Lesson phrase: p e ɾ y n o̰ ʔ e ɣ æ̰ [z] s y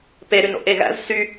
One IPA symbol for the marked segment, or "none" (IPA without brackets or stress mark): z